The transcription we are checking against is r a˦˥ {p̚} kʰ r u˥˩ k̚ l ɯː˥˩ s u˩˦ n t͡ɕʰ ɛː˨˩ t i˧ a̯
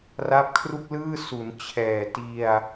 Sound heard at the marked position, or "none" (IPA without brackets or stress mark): p̚